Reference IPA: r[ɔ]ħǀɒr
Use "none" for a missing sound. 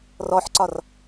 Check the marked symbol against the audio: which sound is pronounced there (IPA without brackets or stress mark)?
ɔ